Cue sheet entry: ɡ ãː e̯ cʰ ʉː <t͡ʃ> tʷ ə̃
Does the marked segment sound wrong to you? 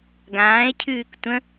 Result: yes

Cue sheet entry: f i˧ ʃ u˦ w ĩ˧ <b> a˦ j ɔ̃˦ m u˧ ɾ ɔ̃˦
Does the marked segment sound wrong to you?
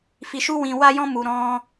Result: yes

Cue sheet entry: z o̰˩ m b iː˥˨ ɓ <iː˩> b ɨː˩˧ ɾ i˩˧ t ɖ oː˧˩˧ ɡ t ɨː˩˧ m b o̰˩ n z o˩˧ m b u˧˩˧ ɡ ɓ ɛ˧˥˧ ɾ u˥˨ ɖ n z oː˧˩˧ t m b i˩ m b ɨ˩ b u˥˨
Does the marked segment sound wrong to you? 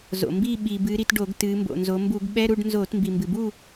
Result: no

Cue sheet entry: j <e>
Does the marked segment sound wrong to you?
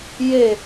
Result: no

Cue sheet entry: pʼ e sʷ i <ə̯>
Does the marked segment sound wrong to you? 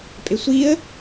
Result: no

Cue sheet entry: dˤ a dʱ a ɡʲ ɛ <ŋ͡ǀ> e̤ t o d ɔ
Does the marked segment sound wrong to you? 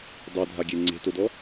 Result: no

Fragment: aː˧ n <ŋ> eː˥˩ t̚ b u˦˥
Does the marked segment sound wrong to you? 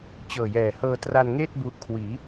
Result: no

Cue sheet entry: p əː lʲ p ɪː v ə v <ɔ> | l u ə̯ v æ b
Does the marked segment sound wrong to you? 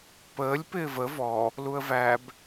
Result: no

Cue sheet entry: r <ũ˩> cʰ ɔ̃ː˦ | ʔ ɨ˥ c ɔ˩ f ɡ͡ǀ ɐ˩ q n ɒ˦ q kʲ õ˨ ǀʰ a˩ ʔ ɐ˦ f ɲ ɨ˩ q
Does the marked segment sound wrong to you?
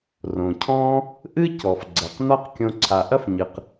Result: yes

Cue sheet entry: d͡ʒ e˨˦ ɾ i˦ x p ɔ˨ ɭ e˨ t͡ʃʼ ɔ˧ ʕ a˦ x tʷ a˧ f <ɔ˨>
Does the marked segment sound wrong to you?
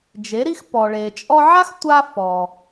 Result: no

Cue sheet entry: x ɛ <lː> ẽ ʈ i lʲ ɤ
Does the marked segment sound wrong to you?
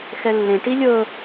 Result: no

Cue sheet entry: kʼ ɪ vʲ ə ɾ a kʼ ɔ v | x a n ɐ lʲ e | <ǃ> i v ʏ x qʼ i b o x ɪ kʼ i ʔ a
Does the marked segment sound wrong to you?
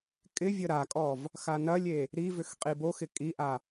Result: yes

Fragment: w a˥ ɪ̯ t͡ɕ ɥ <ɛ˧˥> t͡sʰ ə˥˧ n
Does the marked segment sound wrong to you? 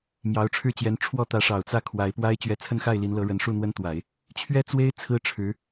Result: no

